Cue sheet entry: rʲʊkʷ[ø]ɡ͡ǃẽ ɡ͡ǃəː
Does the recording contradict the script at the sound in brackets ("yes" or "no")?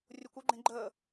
no